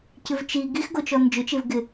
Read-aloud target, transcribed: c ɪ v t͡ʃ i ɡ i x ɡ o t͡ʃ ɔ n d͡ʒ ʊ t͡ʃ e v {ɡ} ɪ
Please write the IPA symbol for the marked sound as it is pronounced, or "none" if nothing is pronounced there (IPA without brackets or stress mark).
ɡ